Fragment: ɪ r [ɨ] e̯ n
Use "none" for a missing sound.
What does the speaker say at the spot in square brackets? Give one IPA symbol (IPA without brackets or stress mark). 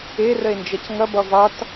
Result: ə